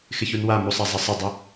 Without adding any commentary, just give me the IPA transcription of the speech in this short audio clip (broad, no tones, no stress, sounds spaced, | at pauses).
x ɪ ç u n w a m u sˤ a zˤ ə sˤ ə dˤ ə